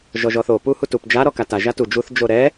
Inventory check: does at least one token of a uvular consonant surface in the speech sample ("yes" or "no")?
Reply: no